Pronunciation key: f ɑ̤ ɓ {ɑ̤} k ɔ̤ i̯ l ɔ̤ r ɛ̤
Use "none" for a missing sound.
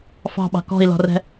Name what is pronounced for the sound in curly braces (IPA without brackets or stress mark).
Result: ɑ̤